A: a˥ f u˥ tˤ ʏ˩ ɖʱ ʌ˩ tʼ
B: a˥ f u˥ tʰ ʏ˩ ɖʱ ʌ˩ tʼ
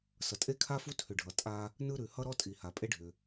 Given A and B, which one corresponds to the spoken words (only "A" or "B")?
B